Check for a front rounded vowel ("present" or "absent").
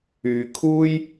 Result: present